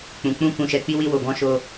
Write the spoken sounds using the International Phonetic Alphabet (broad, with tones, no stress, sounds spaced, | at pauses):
k͡p ũ˨ k͡p ũ˧ k ũ˨ ʃ ɛ˨ k͡p i˧ w i˧ w o˨ ɡ ɔ̃˧ ʃ o˧